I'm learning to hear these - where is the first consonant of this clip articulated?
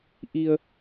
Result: throat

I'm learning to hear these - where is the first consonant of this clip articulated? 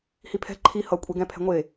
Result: throat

